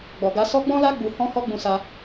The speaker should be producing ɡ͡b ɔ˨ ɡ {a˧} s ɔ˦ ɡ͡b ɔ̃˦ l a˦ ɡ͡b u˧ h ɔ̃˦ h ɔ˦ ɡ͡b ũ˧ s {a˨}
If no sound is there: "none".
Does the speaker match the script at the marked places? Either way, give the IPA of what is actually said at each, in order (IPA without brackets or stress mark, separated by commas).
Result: a˧, a˧